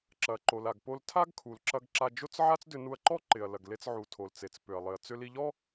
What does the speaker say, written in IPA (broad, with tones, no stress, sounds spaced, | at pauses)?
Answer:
ǁ ɐ˩ ǃ o˩ l a˩ ɡ p o˧ l tʰ a˥ ɡ kʰ u˩ l ǁ ɐ˧ ɡ ǁ a˧ d͡ʒ o˥ t͡s ʕ a˥ t͡s d ʏ˧ n u˧ ɐ̯ ǃ ɔ˥ ǃ ɪ˩ ɐ̯ l ɐ˩ ɡ l e˧ t͡s ʕ u˩ tʰ o˩ l t͡s e˩ t͡s p ʏ˩ ɐ̯ lˠ ɪ˩ ɐ̯ t͡s ʏ˧ l i˧ ʎ ɔ˥